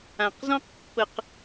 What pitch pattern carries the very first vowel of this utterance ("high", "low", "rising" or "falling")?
low